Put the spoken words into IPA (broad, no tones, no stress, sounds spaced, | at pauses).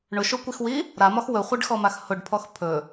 ɳ ʊ ʃ ʊ kʷ i x w i | ɾ a m ɒ x w ɵ χʷ a ɖ x ɔ m a x h ʊ ɖ pʰ ɔ x pʰ ɵ